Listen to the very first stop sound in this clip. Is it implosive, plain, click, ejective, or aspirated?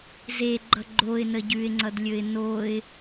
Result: click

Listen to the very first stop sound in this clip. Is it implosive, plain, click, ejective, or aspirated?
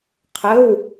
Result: aspirated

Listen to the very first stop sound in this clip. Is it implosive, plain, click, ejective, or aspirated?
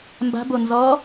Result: plain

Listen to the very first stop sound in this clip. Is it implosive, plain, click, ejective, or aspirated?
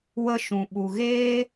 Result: implosive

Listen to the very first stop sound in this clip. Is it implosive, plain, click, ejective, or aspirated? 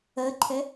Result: click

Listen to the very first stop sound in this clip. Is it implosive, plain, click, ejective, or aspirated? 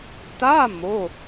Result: plain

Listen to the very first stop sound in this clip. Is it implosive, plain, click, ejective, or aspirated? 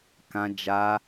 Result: plain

